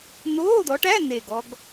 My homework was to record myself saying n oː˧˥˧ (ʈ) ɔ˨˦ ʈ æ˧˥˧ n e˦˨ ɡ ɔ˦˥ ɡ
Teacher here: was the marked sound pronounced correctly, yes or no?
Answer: no